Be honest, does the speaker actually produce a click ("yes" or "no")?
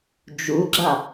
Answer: yes